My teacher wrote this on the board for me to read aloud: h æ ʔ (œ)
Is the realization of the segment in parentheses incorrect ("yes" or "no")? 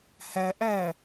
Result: yes